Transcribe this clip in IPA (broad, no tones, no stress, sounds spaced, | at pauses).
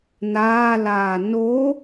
n aː l aː n o